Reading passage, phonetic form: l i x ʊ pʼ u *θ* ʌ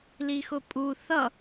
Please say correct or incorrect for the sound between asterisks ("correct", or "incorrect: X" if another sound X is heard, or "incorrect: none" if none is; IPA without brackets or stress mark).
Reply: correct